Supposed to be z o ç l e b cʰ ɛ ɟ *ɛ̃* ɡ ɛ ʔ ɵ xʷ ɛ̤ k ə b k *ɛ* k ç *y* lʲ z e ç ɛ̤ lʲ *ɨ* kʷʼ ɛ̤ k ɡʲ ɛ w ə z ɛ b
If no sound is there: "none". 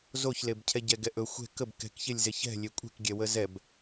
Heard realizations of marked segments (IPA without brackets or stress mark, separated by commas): ɛ, ɛ̤, e, e